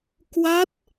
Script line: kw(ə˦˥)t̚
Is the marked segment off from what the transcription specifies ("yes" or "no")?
yes